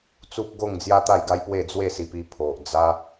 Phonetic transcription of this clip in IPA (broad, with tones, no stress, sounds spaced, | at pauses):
t͡s u˦ p̚ ɡ o˥˧ ŋ d͡z j a˦ t̪ a˥˧ j ɡ a˦ j p w e˥˧ d͡z w e˥˧ s i˧ p i˧ pʰ o˨ ʔ d͡z a˦